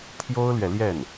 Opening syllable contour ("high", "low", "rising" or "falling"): high